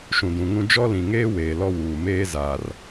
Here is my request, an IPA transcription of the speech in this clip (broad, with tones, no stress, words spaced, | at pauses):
ʃũ˨dũ˨ŋũ˦ d͡ʒɔ˦lĩ˨ŋeː˦ weː˨ lɔ˦wuː˨meː˦ za˨r